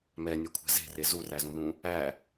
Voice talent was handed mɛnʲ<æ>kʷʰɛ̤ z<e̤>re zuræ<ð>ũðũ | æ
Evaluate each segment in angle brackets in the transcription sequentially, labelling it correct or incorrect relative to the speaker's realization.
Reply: incorrect: ɛ, correct, incorrect: z

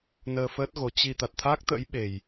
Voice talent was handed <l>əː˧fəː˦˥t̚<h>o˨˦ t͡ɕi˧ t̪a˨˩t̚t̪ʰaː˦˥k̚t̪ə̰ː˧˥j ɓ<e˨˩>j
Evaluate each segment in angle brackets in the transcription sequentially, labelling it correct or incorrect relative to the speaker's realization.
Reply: incorrect: n, incorrect: ɣ, correct

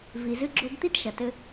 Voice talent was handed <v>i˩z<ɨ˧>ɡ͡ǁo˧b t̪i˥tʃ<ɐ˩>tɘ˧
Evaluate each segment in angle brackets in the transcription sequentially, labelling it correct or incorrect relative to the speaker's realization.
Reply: correct, correct, correct

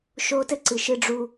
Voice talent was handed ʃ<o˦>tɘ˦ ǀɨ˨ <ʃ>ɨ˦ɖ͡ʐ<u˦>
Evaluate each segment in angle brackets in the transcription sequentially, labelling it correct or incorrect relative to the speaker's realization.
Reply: correct, correct, correct

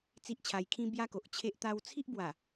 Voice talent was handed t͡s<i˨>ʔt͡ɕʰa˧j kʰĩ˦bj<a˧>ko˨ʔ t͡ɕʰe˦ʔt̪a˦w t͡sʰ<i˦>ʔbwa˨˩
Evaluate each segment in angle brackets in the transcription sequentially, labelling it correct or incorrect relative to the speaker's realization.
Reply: incorrect: i˦, incorrect: a˦, correct

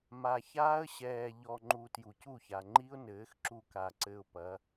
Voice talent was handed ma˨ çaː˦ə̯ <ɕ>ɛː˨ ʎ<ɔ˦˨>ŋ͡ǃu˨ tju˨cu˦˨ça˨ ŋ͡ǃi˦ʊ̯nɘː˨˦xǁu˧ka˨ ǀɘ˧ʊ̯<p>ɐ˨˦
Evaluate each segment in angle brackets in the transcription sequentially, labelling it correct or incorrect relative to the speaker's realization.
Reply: correct, incorrect: ɔ˨, correct

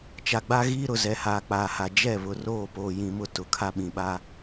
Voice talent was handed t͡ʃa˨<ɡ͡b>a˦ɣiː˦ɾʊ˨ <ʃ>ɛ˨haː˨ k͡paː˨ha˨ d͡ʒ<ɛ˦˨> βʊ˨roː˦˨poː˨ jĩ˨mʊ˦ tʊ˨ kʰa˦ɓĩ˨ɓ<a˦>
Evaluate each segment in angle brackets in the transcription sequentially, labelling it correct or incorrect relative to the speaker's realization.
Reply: correct, incorrect: z, correct, correct

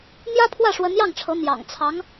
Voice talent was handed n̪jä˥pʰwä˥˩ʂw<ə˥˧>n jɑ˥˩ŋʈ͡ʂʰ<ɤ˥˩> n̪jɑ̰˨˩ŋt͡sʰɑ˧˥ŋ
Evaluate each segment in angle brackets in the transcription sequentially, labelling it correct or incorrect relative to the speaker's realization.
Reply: incorrect: ə˧˥, incorrect: ɤ˧˥

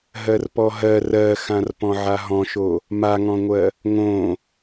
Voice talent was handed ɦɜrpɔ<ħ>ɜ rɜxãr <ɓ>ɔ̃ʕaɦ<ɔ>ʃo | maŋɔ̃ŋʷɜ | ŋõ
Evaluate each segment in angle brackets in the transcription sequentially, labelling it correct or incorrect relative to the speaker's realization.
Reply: incorrect: ɦ, incorrect: p, incorrect: ɔ̃

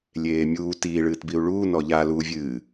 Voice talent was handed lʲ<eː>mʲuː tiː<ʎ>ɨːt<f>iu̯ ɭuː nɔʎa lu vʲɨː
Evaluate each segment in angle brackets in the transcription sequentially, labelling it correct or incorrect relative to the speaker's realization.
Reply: correct, incorrect: ɭ, incorrect: b

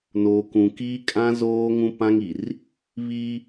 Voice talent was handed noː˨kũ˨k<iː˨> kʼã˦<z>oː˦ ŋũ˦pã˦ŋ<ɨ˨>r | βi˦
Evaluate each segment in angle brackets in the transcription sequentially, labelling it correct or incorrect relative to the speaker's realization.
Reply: incorrect: iː˦, correct, incorrect: i˨

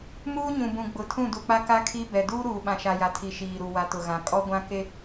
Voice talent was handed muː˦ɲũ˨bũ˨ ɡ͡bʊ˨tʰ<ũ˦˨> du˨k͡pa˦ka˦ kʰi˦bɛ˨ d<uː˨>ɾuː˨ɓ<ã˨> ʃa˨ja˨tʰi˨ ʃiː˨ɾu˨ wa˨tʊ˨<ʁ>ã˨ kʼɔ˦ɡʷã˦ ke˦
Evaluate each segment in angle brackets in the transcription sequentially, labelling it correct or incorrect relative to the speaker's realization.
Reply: correct, incorrect: uː˦, correct, incorrect: ɣ

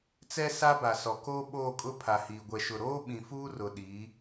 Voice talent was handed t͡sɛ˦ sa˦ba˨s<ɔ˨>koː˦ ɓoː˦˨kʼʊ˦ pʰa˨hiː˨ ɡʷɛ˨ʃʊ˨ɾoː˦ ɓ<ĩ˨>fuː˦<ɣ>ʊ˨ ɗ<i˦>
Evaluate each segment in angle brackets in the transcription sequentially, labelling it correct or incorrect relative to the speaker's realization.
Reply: correct, correct, incorrect: r, incorrect: i˨˦

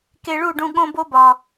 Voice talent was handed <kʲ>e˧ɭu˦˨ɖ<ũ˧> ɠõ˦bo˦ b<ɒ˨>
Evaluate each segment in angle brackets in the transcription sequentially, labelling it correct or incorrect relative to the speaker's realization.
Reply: incorrect: k, correct, correct

